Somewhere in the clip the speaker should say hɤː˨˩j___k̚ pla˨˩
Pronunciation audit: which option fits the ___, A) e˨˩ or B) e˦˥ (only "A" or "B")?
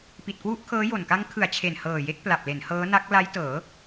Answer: B